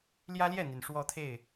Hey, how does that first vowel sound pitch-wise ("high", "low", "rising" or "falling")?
high